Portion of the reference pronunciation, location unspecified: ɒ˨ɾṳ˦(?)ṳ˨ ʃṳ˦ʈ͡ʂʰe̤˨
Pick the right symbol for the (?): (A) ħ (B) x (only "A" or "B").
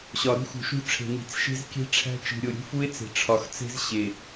B